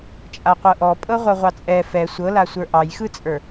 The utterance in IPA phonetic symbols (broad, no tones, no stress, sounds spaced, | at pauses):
t͡ʃʼ a qʷ ɤ ʔ ɔ pʼ ɤ ʁʷ ɤ ʁʷ ɑ t͡sʼ ɛ f ɛ sʷ ɤ l a sʷ ə˞ ʔ ɑ j x ɯ t͡sʼ ə˞